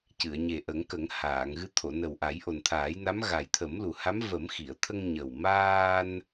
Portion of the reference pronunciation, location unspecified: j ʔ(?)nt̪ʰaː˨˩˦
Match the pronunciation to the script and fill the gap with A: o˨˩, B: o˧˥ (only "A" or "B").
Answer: A